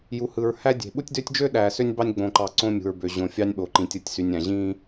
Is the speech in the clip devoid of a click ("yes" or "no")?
no